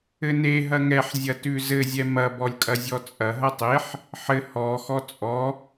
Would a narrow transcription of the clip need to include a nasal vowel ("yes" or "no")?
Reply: no